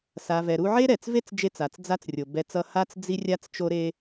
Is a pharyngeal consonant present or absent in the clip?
present